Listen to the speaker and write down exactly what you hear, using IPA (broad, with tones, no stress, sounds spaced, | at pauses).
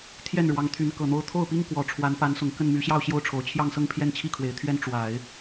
t̪ʰ j ɛ˥˩ n ɻ w ɑ˧˥ ŋ t̪ʰ y˧˥ n k ɤ˨˩ n̪ o˧˥ ʊ̯ t̪ʰ o˥˩ ʊ̯ p i˥ ŋ k w ɔ˨˩ ʈ͡ʂʰ w a˧˥ n p a˧˥ n s ʊ˨˩ ŋ k ə˥˩ n m y˧˥ ɕ j ɑ˥˧ ʊ̯ ɕ j o˥˩ ʊ̯ ʈ͡ʂʰ o˨˩ ʊ̯ t͡ɕʰ j ɑ˥˧ ŋ s ɤ˥˧ ŋ pʰ j ɛ˥˧ n t͡ɕʰ i˥˩ kʰ w e˨˩ ɪ̯ t̪ʰ ɥ ɛ˥ n ʈ͡ʂ w a˨˩˦ ɪ̯